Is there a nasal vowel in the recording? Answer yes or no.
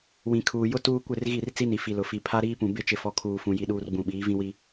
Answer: yes